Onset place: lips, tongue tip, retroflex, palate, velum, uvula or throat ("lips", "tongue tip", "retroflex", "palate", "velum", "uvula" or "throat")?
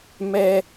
lips